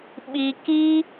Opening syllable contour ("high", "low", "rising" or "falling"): high